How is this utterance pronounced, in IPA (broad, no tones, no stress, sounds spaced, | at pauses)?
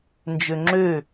n d͡ʒ ø ŋ͡ǁ ø